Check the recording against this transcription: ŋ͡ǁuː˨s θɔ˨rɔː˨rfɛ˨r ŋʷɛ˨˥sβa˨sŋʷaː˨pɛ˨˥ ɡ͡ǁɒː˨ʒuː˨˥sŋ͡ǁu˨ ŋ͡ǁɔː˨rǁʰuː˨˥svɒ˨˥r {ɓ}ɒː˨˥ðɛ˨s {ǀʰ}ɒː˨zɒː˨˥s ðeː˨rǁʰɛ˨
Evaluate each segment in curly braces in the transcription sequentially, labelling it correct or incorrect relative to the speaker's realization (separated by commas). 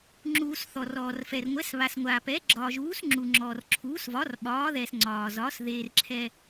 correct, incorrect